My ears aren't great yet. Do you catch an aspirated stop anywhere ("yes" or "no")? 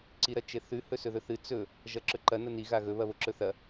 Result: no